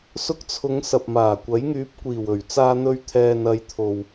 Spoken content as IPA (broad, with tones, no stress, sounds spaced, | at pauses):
s ʊ˧ k̚ t͡sʰ ʊ˨˧ ŋ s ɐ˨ p̚ m aː˨˩ kʷ ɐ˨˥ j ŋ yː˨˥ p̚ kʷ iː˨˩ w ɵ˨˩ ɥ t͡s aː˧ n̪ ɵ˧ ɥ t̪ʰ ɛː˨ n ɐ˨˧ j t̪ʰ o˨ w